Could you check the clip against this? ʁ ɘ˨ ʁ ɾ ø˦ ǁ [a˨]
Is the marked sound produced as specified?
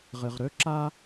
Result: no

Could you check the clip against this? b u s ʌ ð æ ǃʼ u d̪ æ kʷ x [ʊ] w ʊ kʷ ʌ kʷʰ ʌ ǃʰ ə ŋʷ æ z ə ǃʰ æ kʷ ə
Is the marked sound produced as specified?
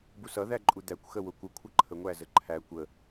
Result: no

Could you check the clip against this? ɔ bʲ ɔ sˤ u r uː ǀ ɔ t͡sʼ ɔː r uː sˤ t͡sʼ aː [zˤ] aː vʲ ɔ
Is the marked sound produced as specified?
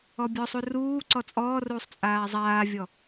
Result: yes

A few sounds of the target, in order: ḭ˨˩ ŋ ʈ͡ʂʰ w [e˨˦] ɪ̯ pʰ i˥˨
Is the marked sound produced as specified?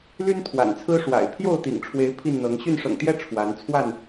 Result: yes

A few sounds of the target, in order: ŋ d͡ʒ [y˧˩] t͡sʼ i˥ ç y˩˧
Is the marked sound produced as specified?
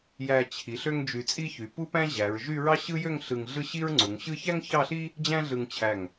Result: yes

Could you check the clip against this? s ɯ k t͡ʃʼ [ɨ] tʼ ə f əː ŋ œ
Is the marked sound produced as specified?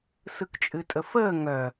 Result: yes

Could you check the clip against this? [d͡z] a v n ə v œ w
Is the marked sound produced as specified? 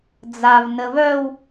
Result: yes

